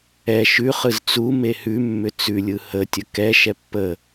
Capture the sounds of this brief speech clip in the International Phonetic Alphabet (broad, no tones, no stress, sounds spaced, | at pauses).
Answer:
ɛ ʃ ʉ χ ɯ z t͡s u m e h ʉ mː ʏ t͡s ʉ lʲ ɯ h ə tʲ ə k ɛ ʃ ɛ pː ə